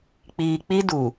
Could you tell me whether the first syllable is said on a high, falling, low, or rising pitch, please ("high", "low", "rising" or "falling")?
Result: low